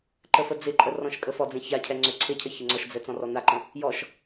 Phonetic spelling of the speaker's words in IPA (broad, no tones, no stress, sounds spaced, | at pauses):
ǃ ə f ə d͡z ɪ ǃʼ ə r ɔ̃ ʃ kʼ ə f ɔ d͡z ẽ ç a cʰ ɛ ŋ͡ǀ ø ǀʰ ɪ cʰ ə ç ɪ ŋ͡ǀ ɔ ʃ d͡z ɛ t͡s ɔ̃ r ɔ n a ǃ ə̃ | j ɔ ʃ